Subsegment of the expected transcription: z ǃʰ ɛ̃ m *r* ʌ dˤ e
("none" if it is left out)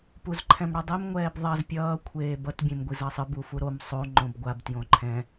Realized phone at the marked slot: ɽ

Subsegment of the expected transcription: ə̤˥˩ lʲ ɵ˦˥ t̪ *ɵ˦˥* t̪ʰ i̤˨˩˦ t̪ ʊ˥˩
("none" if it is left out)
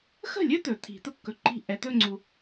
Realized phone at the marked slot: ɵ˨˩˦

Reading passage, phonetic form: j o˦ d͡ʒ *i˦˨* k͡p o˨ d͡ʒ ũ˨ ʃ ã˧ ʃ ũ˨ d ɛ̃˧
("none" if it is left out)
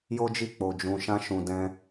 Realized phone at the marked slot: i˦˨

